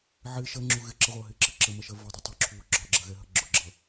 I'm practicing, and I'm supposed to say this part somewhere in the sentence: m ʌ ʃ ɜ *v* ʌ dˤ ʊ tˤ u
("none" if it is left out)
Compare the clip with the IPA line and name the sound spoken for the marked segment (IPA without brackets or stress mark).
v